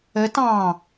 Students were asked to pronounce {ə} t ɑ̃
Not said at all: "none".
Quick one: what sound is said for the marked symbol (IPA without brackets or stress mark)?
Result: ə